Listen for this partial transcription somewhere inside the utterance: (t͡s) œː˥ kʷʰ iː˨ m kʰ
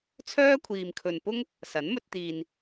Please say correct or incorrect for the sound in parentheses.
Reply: incorrect